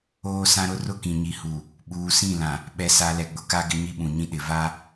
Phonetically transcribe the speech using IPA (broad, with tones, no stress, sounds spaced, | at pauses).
oː˦ s ã˦ ɾ ʊ˦ r ʊ˦ k ĩ˨ ɲ i˨ h u˨ | ɓ uː˨ s ĩ˦˨ l ã˨ | ɓ ɛ˨ s a˨ l ɛ˨ ɡ͡b ʊ˨ k a˦ ɡ ɪ˦ ɲ i˦ ɓ ũ˨ ɲ ĩ˦ ɗ ɪ˨ v a˦